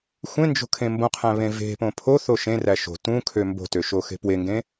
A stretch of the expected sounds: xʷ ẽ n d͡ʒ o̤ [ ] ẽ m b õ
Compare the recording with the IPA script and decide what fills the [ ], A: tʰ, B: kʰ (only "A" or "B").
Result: B